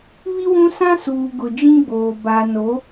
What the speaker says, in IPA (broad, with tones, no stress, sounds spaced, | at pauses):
β i˦ w ũ˦ s ã˦ s uː˨ ɡ ʊ˨ d͡ʒ ĩ˦ ɡ͡b oː˨ b a˨ n o˨˦